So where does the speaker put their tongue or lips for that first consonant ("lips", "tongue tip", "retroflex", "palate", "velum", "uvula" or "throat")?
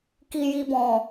velum